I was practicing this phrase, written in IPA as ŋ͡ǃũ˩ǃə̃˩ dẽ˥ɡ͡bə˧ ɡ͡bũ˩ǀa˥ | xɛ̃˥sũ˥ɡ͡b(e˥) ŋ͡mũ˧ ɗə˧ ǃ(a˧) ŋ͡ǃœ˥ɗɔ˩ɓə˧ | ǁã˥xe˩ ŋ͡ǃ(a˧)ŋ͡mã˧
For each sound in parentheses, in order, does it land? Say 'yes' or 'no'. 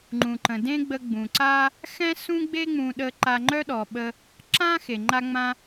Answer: yes, yes, yes

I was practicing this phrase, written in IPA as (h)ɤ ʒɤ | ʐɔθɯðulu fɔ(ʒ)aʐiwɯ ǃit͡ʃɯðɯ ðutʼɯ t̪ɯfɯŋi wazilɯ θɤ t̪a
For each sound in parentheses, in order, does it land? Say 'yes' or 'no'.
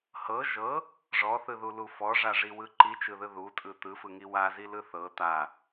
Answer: yes, no

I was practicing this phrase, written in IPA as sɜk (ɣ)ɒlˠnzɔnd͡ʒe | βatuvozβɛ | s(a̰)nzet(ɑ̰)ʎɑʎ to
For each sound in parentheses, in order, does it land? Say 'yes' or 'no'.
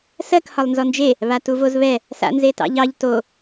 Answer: no, yes, yes

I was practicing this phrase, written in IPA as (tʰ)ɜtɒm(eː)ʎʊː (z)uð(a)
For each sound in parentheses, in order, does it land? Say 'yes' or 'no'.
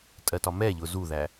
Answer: no, no, yes, no

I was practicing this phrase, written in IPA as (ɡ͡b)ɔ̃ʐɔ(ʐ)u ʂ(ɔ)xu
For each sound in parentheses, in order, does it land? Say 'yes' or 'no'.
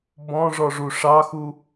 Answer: no, yes, no

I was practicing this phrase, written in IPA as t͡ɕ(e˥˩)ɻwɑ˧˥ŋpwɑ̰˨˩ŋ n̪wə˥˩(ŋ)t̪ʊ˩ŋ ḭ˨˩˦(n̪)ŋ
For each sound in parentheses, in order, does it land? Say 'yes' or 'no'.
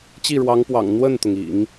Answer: no, no, no

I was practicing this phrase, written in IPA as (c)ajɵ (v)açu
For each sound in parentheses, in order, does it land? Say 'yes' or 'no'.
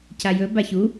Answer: yes, no

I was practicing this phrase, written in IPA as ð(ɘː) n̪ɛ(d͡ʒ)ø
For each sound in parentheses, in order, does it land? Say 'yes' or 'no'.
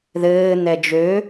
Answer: yes, yes

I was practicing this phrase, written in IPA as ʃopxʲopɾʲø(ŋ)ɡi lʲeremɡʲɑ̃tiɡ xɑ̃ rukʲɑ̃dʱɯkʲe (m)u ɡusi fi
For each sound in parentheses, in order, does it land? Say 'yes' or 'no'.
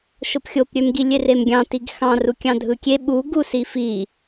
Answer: no, no

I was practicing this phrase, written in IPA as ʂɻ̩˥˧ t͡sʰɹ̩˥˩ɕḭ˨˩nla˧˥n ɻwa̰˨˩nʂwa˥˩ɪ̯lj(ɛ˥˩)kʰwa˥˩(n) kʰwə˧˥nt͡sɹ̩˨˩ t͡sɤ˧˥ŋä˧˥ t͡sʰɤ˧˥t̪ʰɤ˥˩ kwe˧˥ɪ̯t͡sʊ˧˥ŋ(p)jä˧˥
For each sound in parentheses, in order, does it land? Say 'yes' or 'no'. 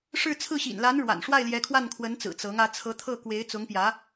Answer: no, yes, yes

